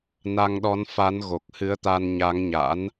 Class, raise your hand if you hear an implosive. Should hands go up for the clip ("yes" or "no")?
yes